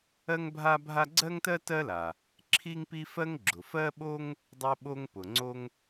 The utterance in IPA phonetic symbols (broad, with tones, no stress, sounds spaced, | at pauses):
ɜ˥ ŋ bʱ a˥ bʱ a˥ ɡ͡ǀ ɜ˥ ŋ t ɜ˥ t ɜ˥ l a˩ | ǁʰ i˥ ŋ p i˥ f ɜ˥ ŋ ɡ͡ǁ ʊ˩ f ɜ˥ ɓ o˥ ŋ | dˤ o˥ ɓ o˥ ŋ p ʊ˩ ŋ͡ǀ o˥ ŋ